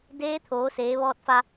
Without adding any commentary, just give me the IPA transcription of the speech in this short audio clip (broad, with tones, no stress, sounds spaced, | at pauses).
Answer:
d eː˧˥ t̪ʰ oː˩˧ s eː˩˧ ʋ ɔː˧ t̚ f a˧